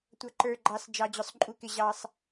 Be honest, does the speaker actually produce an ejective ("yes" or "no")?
yes